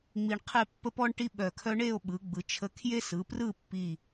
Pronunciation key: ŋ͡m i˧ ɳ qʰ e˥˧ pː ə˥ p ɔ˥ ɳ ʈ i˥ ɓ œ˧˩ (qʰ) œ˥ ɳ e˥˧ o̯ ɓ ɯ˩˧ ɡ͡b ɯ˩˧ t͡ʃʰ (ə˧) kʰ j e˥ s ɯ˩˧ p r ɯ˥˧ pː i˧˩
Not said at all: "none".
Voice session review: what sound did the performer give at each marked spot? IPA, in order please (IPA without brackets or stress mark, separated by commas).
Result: kʰ, ə˧